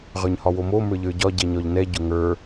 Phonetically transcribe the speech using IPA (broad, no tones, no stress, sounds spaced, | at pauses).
ʁ ə˞ ɲ h ɒ w o m o m ə˞ ʎ ə˞ ɟ ɒ ɟ ɛ ɲ ɒ ʎ n ɛ ɟ ʊ ŋ ə˞